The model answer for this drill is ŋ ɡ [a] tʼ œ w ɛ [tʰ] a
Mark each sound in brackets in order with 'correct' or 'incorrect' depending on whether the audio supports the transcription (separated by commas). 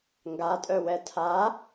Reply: correct, correct